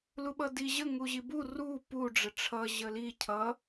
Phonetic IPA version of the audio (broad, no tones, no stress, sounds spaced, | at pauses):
l u ɓ ʌ d i ʑ ə ŋ u ʑ i b u r u p u ɖ͡ʐ ə ʈ͡ʂʰ ʌ ʑ ə l i cʰ ʌ